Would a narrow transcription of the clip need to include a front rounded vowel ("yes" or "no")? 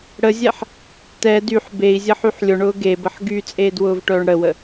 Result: yes